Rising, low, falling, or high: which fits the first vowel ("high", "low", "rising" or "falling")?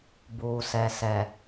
low